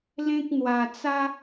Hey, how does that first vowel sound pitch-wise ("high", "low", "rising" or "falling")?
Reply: high